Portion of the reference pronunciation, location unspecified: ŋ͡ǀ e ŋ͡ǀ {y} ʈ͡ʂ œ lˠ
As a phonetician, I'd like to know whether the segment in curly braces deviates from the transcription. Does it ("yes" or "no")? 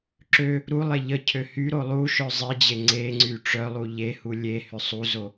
no